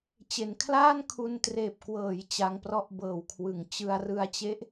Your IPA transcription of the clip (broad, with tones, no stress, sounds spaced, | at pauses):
t͡ɕ e˩˦ n kʰ l aː˥˩ n kʰ u˧ n t r eː˨˩ p̚ k w ɤː˩˦ j t͡ɕ a˧ ŋ p r ɔ˦˥ ʔ b ɤː˨˩ w kʰ w ɯ˩˦ ŋ t͡ɕ ɯ˧ a̯ r ɯ˧ a̯ t͡ɕ e˦˥ ʔ